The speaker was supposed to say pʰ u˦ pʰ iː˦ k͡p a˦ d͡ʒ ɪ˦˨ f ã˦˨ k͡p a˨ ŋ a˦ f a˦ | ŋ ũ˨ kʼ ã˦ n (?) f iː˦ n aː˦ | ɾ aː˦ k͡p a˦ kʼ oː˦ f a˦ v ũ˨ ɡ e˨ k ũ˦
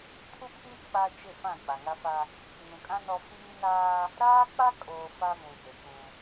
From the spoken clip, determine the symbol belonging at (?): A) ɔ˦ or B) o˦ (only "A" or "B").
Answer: A